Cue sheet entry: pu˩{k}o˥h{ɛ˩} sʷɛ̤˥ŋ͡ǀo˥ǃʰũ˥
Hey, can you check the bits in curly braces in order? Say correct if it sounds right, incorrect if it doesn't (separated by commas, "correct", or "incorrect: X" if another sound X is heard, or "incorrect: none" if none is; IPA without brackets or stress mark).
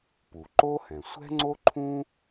incorrect: ǃ, incorrect: ɛ̃˩